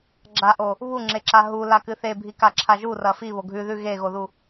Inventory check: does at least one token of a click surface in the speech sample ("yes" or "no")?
yes